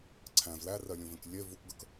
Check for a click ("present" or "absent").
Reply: present